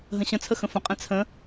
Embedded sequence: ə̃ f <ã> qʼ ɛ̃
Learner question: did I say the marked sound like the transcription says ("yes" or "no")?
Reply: no